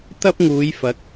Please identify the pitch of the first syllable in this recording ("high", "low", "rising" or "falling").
high